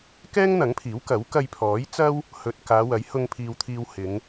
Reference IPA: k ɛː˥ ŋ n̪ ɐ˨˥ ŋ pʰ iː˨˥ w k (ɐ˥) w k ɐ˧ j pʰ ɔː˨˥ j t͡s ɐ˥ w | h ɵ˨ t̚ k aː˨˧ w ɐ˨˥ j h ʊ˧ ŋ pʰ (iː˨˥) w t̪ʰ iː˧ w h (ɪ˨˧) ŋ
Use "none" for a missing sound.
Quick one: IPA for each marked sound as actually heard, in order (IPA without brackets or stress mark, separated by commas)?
ɐ˨˥, iː˨, ɪ˨˧